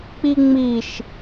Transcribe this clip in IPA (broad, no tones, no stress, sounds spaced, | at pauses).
k͡p i ŋ͡m i ʃ